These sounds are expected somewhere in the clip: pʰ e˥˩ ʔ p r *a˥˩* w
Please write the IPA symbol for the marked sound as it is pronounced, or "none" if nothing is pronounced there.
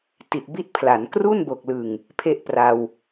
a˧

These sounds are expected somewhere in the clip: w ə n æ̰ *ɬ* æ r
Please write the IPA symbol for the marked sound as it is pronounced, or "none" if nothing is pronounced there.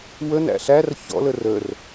ɬ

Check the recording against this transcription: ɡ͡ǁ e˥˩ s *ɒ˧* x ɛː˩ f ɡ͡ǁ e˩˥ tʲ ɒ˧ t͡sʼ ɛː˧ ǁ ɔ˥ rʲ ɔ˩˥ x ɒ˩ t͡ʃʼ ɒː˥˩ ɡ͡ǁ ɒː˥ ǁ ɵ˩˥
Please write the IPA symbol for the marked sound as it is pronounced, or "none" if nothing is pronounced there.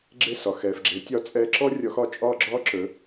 ɒ˩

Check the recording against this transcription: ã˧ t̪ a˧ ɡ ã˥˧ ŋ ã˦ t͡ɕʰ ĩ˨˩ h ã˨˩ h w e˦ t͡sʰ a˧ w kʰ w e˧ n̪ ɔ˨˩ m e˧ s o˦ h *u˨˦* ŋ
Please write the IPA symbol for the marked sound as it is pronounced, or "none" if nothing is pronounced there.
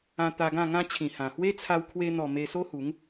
u˨˦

